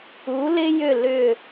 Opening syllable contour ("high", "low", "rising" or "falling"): rising